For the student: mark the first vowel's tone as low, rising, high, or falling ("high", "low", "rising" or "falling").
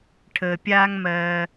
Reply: low